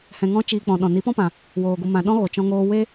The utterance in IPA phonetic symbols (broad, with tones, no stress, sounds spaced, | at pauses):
h ɛ̃˧ ŋ ɔ̃˦ t͡ʃ iː˧ k͡p ɔ̃˨ ɗ ɔ̃˨ n i˨˦ p ɔ̃˦ p ã˨ | w oː˨ ɡʷ ɨ˨ m ã˨ ɗ ɔ̃˦ ɣ o˨ t͡ʃ ɔ̃˦ ŋ oː˦ w e˦